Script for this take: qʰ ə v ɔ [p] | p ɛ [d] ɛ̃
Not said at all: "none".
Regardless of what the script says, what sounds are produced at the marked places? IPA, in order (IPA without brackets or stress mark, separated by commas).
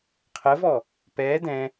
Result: none, d